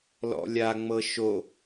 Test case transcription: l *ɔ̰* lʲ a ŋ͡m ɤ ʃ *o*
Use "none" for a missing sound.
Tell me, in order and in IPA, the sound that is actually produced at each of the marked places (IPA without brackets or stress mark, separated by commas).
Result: ɔ̰, o